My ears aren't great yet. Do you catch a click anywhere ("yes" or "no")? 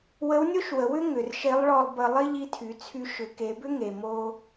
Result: no